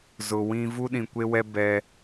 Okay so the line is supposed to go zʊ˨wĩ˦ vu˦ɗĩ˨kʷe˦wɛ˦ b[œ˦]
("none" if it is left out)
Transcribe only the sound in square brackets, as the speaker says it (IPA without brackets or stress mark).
ɛ˦